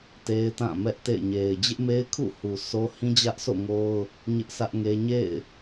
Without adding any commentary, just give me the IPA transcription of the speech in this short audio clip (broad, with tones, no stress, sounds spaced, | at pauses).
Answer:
t e˦ ɪ̯ t ã˦˨ m ɛ˦ ʔ t ḛ˦˨ ɪ̯ ɲ e˨ ɪ̯ d͡ʑ ɪ˦ ʔ m e˦ ɪ̯ kʰ ṵ˦˨ h u˨ s o˦ h ĩ˦ d͡ʑ ä˦ ʔ s o̰˦˨ ŋ o˦ ʊ̯ | ɲ ɪ˦ ʔ sʰ ä˦ ʔ ŋ e˦ ɲ ḛ˦˨ ɪ̯